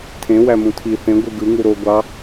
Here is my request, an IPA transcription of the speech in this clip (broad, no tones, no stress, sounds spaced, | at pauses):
tʰ ẽ w æ m ũ tʰ i θ ẽ ɡʷ ɯ ɡ ɯ ŋ u ɾ o ɡʷ ɑ